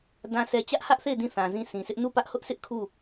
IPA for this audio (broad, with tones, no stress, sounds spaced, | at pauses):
d ã˨ sʰ ɛ˨ t͡ɕ ä˦ ʔ h ä˦ ʔ θ e˦˨ ɪ̯ d ĩ˦˨ θ ã˨ z ĩ˦˨ sʰ ĩ˨ s ɪ˦ ʔ n u˦˨ p ä˦ ʔ h ʊ˦ ʔ s ɪ˦ ʔ kʰ u˦˨